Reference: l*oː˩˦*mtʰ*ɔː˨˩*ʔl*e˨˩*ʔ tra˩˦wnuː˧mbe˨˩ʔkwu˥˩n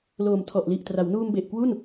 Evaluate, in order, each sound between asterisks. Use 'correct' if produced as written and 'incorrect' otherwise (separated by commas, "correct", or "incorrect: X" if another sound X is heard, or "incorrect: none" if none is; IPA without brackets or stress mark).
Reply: incorrect: oː˨˩, incorrect: ɔ˨˩, incorrect: i˨˩